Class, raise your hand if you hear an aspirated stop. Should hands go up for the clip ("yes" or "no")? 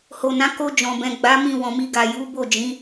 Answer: no